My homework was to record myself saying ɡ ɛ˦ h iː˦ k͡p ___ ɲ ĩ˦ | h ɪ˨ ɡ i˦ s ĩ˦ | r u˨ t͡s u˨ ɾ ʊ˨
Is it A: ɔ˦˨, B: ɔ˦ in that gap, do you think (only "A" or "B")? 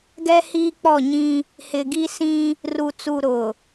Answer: A